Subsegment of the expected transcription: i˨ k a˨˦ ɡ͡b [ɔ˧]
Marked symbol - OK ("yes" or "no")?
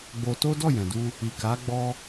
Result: no